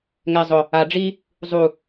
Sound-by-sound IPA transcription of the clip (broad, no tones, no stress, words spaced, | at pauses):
ŋɛ zˤʊ | a ɖ͡ʐi | zˤu